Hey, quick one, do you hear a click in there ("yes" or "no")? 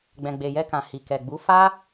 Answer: no